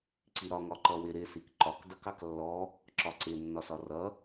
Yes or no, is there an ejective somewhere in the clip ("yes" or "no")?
no